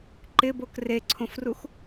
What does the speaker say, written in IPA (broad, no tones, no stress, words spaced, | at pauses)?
ǃɪbok reǀʰõfrux